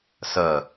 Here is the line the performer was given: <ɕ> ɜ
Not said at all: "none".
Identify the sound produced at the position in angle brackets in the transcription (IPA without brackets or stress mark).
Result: s